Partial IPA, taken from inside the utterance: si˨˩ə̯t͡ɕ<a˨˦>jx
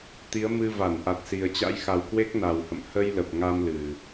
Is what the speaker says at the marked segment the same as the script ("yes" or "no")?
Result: no